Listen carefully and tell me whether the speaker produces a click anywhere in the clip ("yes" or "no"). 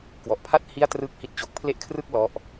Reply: no